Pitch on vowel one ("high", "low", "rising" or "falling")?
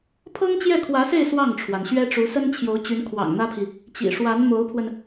high